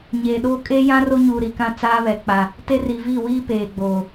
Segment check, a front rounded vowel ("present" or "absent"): absent